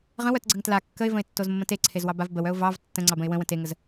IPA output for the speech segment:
ʁ ə̃ w œ t ɡ͡ǀ ə ŋ t l a kː ə ɪ̯ v ə̃ ɪ̯ tː o z mː ə̃ t e ǀʰ e z w ɑ b a v b ə w œ ʊ̯ v ɑ v tː ə̃ ŋ͡ǀ ɑ b ə̃ ɪ̯ w ə̃ w ə̃ t e ŋ ə z

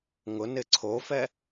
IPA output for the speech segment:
ŋ ʊ n ɪ ǀʰ o f ɛ

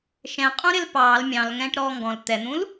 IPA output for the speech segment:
ʃ ɛ̃ qʼ ũ ɾ ɪ l p ɑː l mʲ ɑ̃ l ŋ ɛ̃ː ʈ ɾ ɔː ŋ ɡ ɔ̃ l t̪ ɛ n̪ ũ l

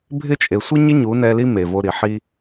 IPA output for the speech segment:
bʱ ɪ˦˨ t͡ʃʼ e˨ sʷ ɪ˦ ɲ ɪ˦ ɲ u˨˦ n ɛ˧ l i˦ m e˨ v o˧ ɾ i˨ ħ i˧

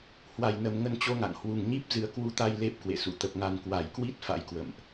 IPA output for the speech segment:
h w a˨˩ j n ə˨˩ m ŋ ə˧ n t͡ɕ o˧ ŋ a̰˧˨ ŋ h w u˨˩ ŋ ɲ i˦˥ p̚ z ɨ˨˦ ə̯ k w u˧ t̪ a˧ j l e˦˥ p̚ k w ḛ˧˨ s ṵ˧˨ t̪ ə˨˩ p̚ ŋ a˨˩ n k w a˧˩ j k w i˦˥ t̚ f a̰˧˥ j k w ə̰˧˨ m ʔ

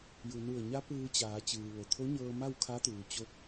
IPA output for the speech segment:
j u˩ n u˧˩ ə̯ ɲ a˧˥ p ɯː˧ t͡ɕ aː˩˧ t͡ɕ ɯː˩ ʋ o˩ t̪ʰ o˧˥ ɲ ɤː˧ m a˥˨ w kʰ a˧˥ t̪ uː˩ t͡ɕ o˧˥ k̚

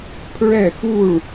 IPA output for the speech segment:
pʰ ɹ ɛ˥˧ x u˥˧ ɭ

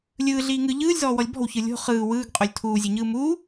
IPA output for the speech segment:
lʲ ɯː ɮ iː ŋ ɯ ʎ ɯː lʲ z ɔː w ɔ lʲ b ɔ̤ w ç ɯ lʲ o̤ χ ɯː w ɯː ɡ qʼ o lʲ tʰ uː zʲ e ɲ ɯː m u

